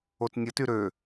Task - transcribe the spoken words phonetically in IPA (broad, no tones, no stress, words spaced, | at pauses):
otnʲəty ɾø